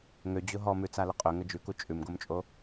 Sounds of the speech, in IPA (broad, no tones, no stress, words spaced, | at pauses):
ŋød͡ʑʊ ɦɔmʉt͡salə qʼøŋə d͡ʒʉku t͡ʃʼʉmɡomt͡ʃʼo